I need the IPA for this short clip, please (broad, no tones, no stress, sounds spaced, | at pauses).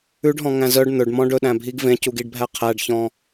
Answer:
ʉ ɖ ɦ ɔ̃ ŋ æ̃ z œ ɖ n̪ ɵ ɖ m ɔ̃ ɖ ɵ ɗ æ̃ bʱ i ɡ v ẽ c u ɡ i ɖ bʱ æ qʰ æ ɖ ç ɔ̃